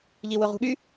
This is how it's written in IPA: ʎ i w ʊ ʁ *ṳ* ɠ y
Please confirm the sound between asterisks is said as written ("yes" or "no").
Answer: yes